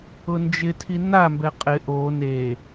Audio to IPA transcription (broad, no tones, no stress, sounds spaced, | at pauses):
ʊ n d͡ʒ ɪ tʰ i n a m b ɛ qʼ ɪ ʔ o n e